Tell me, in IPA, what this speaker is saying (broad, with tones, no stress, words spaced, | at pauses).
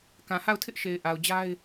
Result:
kã˨ha˦˨ʊ̯tʰɪ˦ʔʃe˨ɪ̯ ʔa˨ʊ̯d͡ʑa˦ɪ̯